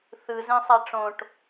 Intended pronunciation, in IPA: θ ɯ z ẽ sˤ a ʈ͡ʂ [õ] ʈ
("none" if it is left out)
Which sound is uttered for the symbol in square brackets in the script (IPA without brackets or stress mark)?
õ